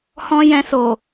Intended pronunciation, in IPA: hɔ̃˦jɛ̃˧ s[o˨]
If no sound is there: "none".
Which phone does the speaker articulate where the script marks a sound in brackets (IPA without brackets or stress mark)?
o˨